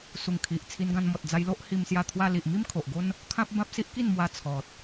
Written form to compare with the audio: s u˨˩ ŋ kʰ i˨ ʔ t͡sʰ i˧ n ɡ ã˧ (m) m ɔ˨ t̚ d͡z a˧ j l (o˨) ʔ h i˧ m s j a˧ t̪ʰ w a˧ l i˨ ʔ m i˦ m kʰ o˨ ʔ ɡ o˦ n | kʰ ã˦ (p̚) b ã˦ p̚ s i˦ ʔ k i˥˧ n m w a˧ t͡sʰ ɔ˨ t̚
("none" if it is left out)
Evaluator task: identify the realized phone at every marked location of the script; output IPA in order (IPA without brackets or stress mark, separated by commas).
n, o˦, p̚